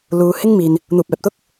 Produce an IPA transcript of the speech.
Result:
l uː˨˧ h ɪ˥ ŋ m iː˨ n | n̪ uː˨ p̚ ɛː˨ p̚ t̪ ʊ˥ k̚

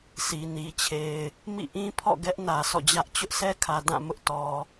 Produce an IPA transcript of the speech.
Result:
sʰ i˨ n i˨ t͡ɕʰ e˨ ɪ̯ | m ḭ˦˨ ʔ ĩ˦ pʰ ɔ̰˦˨ ɡ ɛ˦ ʔ n ä˨ sʰ ɔ̰˦˨ d͡ʑ ä˦ ʔ t͡ɕ ʊ˦ ʔ sʰ ɛ˦ kʰ ä˨ d ã˦˨ m ʊ˦ ʔ t ɔ˨

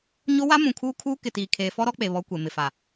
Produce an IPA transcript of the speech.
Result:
ɲ o˦ w a˦ m ũ˨ kʰ uː˦ kʰ uː˦ k ɪ˨ t iː˨ kʰ eː˦ f ɔ˦ ɾ ɔ˦ k͡p e˨ β ɔ˦ kʷ e˨ m ɪ˨ f a˨

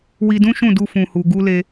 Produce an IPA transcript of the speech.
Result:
w i˧ d ũ˦ ʃ ũ˦˨ d u˧ f ũ˨ h u˨ ɡ u˧ l e˧

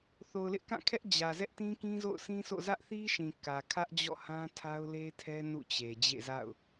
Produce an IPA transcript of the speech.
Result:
θ o˨ ʊ̯ l ɪ˦ ʔ k ã˦˨ kʰ ɛ˦ ʔ d͡ʑ ä˨ z ɛ˦ ʔ t ĩ˦ k ĩ˦ z o̰˦˨ ʊ̯ sʰ ĩ˦ sʰ o̰˦˨ z ä˦ ʔ θ i˦ ʃ ĩ˨ k ä˨ kʰ ä˦ ʔ d͡ʑ ɔ̰˦˨ h ã˦ tʰ a˦ ʊ̯ l e˦ tʰ ɛ˦ n ṵ˦˨ t͡ɕ e˨ d͡ʑ ḛ˦˨ z a̰˦˨ ʊ̯

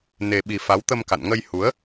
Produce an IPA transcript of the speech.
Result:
n e˧ ɓ i˧ f a˨˦ w t̪ ə˧ m k a̰˧˨ n ŋ ə˧ j h u˨˦ ə̯

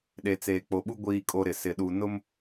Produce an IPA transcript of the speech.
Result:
ɗ e˨ t͡s eː˨ k͡p o˨ ɓ u˦ ɡʷ iː˦ kʼ o˦ ɾ ɪ˨ s ɪ˨ ɗ u˨ n ʊ˦ m

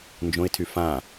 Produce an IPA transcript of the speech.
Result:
n d͡ʒ õ ɪ̯ tʰ y f ã

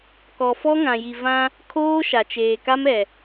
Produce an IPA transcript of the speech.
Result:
k ɔ˨ f ɔ˦ ŋ ã˨ j i˨ v ã˦ | kʰ oː˦ ʃ a˨ t͡ʃ eː˨ k a˦ m ɛ˨

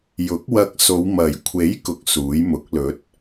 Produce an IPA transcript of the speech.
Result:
j ʊ˨˥ k̚ w ɐ˧ k̚ s o˨˧ w m ɐ˨˩ j kʷʰ e˨˥ j k ʊ˧ k̚ s uː˨˥ j m ʊ˨˥ k̚ l ɵ˨˥ t̚

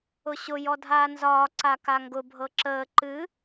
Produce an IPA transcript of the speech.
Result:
ʊ ɕ ʊ j ɔ dʱ aː n z ɒː ǀ a k a ŋ ɡ ʊ bʱ ɤ ǁ əː ǃ ɨ

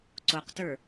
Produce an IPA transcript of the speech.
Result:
ǀ o q t ə˞

